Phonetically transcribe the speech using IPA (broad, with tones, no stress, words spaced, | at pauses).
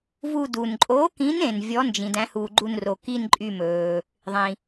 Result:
vu˦˨ du˩nǃʼo˨˥kĩ˨˥nẽ˩n vʲɔ˨˥ nd͡ʒĩ˩ dæ̃˨˥huː˩ɡ͡ǃu˦˨n ro˩ki˦˨n ǃʼy˦˨mɵː˩ | ðˤĩ˩